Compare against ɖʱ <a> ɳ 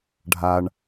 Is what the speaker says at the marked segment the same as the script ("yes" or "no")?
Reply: yes